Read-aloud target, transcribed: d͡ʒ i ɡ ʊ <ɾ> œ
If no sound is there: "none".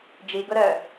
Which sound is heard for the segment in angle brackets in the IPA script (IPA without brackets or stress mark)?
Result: ɾ